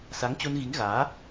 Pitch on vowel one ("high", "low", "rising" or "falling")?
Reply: rising